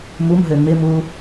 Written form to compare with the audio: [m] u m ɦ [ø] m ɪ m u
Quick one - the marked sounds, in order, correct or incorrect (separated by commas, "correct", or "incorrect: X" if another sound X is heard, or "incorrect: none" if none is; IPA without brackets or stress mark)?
correct, correct